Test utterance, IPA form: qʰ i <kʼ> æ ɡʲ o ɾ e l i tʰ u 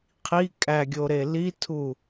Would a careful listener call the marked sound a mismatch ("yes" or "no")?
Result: no